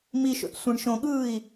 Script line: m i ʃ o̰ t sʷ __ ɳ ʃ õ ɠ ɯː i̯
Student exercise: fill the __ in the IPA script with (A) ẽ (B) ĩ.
B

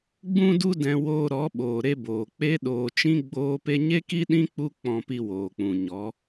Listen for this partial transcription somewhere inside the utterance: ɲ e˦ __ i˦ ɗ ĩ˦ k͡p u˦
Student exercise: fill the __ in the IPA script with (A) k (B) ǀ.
A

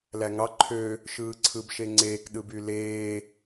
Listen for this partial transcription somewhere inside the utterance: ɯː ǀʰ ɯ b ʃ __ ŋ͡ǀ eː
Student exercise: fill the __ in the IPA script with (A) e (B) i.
A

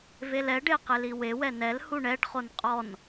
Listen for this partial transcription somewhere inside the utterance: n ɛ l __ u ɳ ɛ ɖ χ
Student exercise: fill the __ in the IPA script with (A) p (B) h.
B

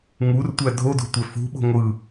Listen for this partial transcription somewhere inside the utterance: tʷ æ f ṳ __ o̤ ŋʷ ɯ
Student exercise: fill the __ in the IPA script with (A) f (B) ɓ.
B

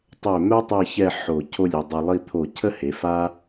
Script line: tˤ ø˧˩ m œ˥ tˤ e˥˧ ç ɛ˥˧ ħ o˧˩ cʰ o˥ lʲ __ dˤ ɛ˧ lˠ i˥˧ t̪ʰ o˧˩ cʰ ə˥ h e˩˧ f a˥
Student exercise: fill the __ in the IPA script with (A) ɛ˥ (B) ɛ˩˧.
B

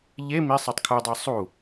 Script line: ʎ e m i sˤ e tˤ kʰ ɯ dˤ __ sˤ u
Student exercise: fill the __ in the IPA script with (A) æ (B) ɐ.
A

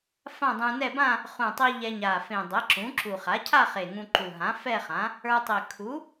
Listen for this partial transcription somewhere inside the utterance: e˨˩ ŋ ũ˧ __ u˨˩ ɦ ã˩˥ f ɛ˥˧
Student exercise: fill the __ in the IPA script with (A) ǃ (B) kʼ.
A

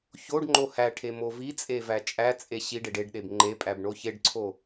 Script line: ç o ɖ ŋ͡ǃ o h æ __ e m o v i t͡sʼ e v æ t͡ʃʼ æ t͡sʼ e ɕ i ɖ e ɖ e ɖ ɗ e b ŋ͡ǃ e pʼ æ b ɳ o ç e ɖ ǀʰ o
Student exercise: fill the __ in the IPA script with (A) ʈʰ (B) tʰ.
A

